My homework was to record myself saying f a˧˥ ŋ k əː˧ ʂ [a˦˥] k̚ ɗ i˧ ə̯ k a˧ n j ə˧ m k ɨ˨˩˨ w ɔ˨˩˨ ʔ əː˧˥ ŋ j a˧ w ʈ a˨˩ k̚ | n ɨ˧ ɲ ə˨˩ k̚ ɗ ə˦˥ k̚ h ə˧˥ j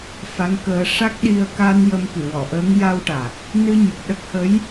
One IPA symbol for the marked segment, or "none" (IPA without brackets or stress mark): a˦˥